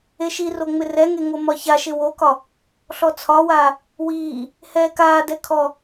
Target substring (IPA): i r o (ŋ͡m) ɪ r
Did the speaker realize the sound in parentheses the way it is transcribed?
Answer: yes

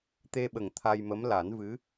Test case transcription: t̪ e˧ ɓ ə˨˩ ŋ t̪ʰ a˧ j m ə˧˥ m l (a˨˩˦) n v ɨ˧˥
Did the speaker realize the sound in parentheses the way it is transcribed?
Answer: yes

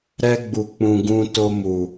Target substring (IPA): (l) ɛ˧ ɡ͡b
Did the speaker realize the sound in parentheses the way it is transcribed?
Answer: no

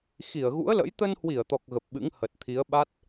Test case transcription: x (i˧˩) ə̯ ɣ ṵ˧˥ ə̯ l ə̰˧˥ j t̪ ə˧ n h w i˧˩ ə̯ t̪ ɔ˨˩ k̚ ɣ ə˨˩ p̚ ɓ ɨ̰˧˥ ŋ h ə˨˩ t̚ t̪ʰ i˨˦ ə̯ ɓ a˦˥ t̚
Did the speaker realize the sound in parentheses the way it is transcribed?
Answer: yes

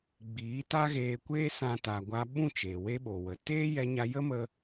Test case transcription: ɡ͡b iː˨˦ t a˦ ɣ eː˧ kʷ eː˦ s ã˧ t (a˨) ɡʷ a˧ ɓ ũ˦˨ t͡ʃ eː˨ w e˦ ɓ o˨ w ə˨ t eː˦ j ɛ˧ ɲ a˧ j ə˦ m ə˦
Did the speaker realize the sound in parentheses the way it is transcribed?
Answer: yes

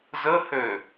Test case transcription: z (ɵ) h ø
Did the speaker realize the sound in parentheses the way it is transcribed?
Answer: no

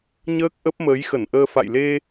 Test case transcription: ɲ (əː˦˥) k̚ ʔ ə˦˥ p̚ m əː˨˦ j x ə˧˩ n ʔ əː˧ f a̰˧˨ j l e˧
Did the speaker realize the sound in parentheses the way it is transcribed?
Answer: yes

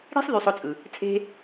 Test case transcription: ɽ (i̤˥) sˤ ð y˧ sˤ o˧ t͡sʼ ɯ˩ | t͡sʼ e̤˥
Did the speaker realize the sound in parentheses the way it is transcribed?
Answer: yes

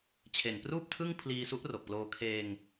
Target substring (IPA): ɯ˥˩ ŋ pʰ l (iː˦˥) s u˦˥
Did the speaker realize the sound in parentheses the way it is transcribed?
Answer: no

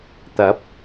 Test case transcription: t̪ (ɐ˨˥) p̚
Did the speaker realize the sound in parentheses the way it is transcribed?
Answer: yes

